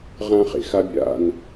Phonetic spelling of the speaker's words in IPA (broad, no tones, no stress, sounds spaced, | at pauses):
ʁ ã χ ḛ x a bʲ a̰ n